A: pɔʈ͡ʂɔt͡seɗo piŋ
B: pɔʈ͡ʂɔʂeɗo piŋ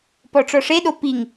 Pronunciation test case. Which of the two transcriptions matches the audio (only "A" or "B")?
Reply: B